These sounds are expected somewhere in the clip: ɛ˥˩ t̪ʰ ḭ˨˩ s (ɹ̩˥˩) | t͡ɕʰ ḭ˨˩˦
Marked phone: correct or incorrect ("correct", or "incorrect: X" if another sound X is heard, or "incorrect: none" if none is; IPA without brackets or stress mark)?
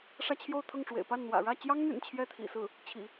correct